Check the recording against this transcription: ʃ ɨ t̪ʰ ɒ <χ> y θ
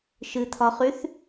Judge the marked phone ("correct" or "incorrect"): correct